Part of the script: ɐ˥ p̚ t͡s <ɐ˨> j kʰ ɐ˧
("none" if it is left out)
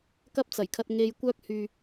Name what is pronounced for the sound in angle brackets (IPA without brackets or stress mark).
ɐ˨˩